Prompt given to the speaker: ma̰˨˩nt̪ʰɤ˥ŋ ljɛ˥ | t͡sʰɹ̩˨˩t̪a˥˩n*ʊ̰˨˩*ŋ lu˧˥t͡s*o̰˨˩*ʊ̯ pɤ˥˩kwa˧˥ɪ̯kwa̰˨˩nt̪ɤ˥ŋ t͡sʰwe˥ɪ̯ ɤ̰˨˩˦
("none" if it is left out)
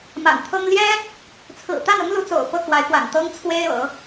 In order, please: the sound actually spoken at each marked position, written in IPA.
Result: ʊ˥, o̰˨˩

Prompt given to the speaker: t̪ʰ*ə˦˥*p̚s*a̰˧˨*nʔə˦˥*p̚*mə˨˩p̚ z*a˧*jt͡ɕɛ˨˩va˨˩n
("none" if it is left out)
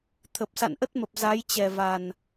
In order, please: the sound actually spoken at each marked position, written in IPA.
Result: ə˨˩, a̰˧˨, t̚, a˨˦

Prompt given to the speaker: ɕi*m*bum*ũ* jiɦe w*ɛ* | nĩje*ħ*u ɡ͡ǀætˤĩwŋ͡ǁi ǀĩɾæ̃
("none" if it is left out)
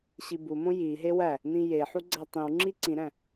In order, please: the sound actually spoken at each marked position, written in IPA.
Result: none, õ, æ, ħ

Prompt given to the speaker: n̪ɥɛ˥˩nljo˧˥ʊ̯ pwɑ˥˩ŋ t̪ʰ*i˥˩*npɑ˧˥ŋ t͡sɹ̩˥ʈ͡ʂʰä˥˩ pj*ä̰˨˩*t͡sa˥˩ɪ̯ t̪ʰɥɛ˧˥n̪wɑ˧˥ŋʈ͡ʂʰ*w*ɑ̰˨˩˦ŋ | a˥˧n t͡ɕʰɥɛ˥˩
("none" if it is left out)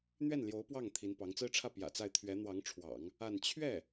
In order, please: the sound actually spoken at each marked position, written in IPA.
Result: i˧˥, ä̰˨˩, w

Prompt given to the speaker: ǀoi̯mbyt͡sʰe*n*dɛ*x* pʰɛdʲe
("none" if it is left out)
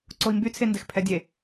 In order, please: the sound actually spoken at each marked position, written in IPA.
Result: n, x

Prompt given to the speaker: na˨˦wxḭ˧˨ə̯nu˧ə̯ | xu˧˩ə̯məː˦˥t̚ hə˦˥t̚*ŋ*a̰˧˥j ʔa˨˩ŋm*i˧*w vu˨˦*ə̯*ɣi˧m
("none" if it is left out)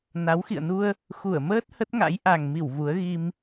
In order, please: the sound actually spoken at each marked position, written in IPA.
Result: ŋ, i˧˩, ə̯

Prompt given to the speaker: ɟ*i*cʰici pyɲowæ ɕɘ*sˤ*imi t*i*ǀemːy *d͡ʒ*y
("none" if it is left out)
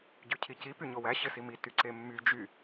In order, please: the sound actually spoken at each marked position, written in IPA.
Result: y, s, y, d͡ʒ

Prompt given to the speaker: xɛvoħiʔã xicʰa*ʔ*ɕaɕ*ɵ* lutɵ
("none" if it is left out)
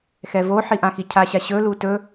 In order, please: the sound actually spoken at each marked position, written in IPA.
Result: none, ɵ

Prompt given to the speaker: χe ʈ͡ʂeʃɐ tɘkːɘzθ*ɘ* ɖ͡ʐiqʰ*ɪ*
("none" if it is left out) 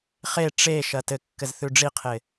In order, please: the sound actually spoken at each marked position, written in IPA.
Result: ʉ, ɪ

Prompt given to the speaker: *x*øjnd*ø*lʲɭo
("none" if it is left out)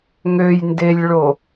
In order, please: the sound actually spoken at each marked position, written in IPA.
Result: ŋ, e

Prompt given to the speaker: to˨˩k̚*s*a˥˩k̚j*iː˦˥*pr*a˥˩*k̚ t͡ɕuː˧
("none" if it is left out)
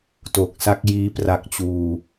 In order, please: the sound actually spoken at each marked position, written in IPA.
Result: s, iː˦˥, a˦˥

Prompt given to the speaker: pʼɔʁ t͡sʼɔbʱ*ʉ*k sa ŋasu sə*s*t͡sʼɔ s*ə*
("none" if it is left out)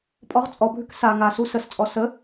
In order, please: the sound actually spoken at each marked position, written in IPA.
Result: ʉ, s, ə

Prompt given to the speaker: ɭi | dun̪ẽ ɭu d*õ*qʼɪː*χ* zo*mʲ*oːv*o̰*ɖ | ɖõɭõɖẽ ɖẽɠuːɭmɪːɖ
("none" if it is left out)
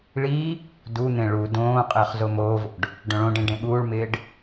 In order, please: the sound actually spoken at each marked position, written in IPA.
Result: õː, χ, m, o̰

